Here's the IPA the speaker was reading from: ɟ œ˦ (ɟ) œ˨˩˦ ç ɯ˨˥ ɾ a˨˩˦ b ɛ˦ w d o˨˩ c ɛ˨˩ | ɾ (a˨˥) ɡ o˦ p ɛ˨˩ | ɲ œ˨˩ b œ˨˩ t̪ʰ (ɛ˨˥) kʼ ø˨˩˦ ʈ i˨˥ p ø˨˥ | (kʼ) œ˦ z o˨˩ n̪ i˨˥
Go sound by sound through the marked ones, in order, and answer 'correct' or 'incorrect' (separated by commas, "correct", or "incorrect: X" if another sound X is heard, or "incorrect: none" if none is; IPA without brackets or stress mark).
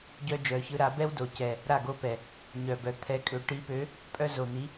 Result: incorrect: d͡ʒ, incorrect: a˥˩, correct, incorrect: pʼ